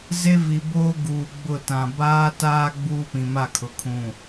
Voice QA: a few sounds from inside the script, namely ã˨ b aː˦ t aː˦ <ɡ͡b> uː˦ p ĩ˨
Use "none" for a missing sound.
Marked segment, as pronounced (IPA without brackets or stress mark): ɡ͡b